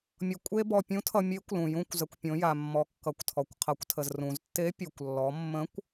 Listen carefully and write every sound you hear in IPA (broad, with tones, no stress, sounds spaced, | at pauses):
mʲ ʌ˧ kʷʼ e˥ b ɔ˧ pʲ ũ˧˥ tʰ ʌ˧ mʲ e˧˥ kʷ l ũ˩ j ũ˧ kʷ z ə˩˧ kʷ pʲ õ˩˧ j a˩ mː ɔ˩˧ kː ʌ˩˧ kʷ tʰ ɔ˩ kʷ qʰ ʌ˩˧ kʷ tʰ ə˩ z r ũ˩ z tː e˧˥ pʲ u˩ kʷ lː ɔ˩˧ mː ə̃˧˥ kʷ